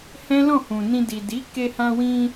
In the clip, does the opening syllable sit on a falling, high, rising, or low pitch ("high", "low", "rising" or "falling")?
high